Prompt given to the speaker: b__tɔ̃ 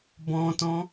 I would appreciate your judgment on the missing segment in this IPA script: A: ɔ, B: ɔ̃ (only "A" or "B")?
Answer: B